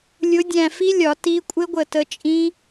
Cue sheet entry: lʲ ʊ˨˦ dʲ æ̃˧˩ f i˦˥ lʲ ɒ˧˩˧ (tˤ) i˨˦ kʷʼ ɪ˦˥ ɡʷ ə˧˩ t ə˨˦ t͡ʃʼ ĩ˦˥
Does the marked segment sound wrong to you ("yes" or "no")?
yes